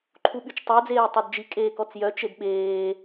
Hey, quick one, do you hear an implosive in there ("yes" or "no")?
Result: yes